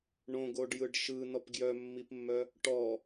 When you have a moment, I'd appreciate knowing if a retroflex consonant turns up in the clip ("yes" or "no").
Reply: yes